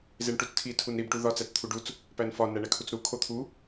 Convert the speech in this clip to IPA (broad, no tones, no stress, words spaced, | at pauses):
zeɳʈut͡stʰi tʰunɾib ʈuðɒ t͡sæt͡st̪ʰuɖut͡s | pænfɒ næɳækʰut͡sɾu kʰot̪ʰu